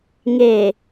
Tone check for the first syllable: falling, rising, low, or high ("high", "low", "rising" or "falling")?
low